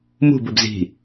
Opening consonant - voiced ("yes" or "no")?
yes